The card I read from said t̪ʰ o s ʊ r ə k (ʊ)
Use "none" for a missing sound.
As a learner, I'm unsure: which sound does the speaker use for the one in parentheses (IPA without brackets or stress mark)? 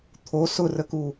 u